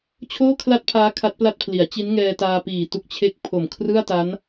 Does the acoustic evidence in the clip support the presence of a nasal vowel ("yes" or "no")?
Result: no